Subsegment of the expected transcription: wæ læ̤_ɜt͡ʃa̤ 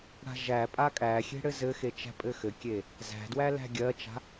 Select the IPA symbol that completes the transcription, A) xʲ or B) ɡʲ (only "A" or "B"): B